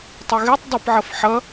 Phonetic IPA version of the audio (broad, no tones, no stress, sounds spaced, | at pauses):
tˤ u ɣ e tˤ dˤ ə p ʕ ʌ f ħ ʌ